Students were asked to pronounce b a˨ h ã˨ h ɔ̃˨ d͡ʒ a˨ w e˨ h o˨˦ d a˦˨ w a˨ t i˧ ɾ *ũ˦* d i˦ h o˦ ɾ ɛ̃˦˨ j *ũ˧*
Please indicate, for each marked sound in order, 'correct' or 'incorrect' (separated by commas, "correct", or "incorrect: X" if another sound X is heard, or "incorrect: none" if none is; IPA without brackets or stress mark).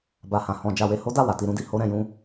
correct, incorrect: ũ˨˦